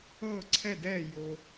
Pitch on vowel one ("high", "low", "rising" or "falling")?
falling